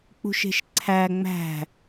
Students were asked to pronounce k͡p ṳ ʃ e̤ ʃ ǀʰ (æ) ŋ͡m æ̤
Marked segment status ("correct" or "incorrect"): correct